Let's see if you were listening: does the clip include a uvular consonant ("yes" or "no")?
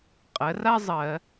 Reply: yes